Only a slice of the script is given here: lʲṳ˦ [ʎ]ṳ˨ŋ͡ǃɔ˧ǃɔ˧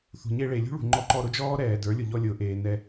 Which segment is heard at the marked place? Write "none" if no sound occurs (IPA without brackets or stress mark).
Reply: ɭ